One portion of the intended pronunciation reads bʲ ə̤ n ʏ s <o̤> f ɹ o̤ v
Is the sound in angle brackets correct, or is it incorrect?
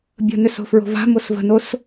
correct